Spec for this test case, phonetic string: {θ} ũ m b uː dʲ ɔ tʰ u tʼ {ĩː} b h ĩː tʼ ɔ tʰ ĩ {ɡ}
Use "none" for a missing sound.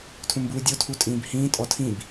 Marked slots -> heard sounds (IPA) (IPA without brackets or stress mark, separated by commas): tʰ, ĩː, b